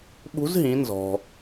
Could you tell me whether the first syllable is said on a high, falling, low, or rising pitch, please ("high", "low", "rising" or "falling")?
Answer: rising